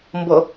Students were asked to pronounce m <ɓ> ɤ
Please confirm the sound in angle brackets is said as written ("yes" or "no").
no